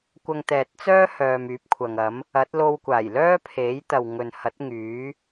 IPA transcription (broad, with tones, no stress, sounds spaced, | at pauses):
kʷ ɐ˧ ŋ t̪ ɛː˨ t̚ t͡s œː˥ h œː˨ m yː˨˥ p̚ kʷʰ ɐ˨ ŋ ɐ˨˥ m | ɐ˨˥ t̚ l o˧ w kʷ aː˨˩ j l œː˥ pʰ e˨˥ j t̪ ɐ˨ w ŋ ɵ˨ n h ɐ˨˥ t̚ ŋ yː˨˥